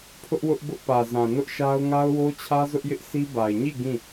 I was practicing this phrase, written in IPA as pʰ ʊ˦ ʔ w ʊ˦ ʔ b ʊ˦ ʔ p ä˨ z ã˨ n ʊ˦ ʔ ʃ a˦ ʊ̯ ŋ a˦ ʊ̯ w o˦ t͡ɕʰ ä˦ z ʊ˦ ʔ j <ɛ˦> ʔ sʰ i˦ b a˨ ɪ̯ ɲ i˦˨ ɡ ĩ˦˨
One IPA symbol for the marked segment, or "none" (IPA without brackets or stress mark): ɪ˦